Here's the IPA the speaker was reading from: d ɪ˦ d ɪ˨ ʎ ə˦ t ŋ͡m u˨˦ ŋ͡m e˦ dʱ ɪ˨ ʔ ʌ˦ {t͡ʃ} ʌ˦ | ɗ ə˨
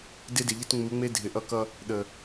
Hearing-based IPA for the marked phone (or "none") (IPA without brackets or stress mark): k